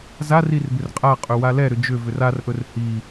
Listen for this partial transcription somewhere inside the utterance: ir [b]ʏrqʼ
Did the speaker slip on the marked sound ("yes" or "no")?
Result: no